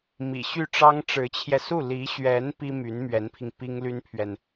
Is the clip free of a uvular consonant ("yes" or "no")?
yes